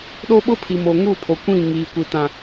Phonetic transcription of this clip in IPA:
ɗo˦ɓʊ˦pʰi˨mo˨ ŋu˦˨pʰo˨kʷĩ˦˨ ŋiː˨kʷi˨ tã˨

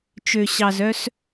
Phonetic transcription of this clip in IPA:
t͡ʃø˩ɕɑ˩zœ˧s

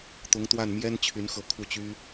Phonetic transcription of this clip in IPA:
t̪ʊ˧˥ŋt̪wa˥˩n mjɛ˥nt͡ɕʰy˧˥nxɤ˧˥ kʰu˥˩t͡ɕy˥

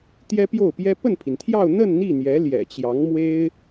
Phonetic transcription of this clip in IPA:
t̪jɛ˥pjo˥˩ʊ̯pjɛ˥ pə˥˩npʰi˩nt̪ʰjɑ˥˧ʊ̯ n̪ə˥˧n n̪i˥˩ n̪jɛ˧˥ ljɛ̰˨˩t͡ɕjɑ˧˥ŋmwe˥ɪ̯

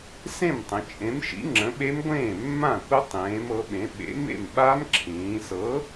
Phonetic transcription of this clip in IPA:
sẽ˥˩mtˤə̃˩˧ t͡ʃʼẽ˨˥mʃḭ˨˥ ŋ͡ǁə̃˨˥ɓe˦˥mɡʷẽː˥˩ mːã˥˩kʷə˦˥ tˤẽː˨˥mɤ˨˥ɓẽ˨˥ ɓḛ˨˥ mḛ˥˩mɓa˦˥m ǁʰĩː˩˧sɤ˨˥

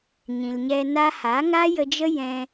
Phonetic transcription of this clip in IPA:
ɲĩ˨l ɲɛ˧na˦ ha˨˦ŋa˦jə˧d͡ʒə˦ jɛ̃˧

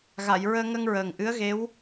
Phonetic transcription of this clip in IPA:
ɣa˨˩˨jɹəː˧ŋə˧ŋ ɹəː˨˩ŋʔɨ˧˥ə̯ɣe˧˥w

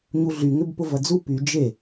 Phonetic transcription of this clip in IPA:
ɲuɮyŋʏb pʊvɐd͡zu py d͡ʒe

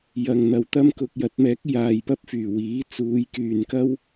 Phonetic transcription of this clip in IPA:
jɐ˨ŋ n̪ɐ˨wt̪ɐ˥mkʊ˧k̚ jɐ˨˥t̚mɛː˨˥k̚ jaː˨jpɐ˥p̚fyː˨˩ wiː˨˥t͡suː˨˧jkyː˨nkɐ˥w

